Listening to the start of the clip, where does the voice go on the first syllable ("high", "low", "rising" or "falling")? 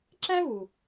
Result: high